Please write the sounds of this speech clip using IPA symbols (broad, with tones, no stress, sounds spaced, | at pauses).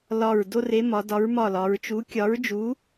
l ɒ˧˩ ɹ d o˦ r e˨˥ m ɒ˩˧ d ɒ˨˥ ɹ m ɒ˧˩ l ɒ˩˧ ɹ t͡ʃ u˨˥ kʲ ɒ˨˥ ɹ d͡ʒ u˨˥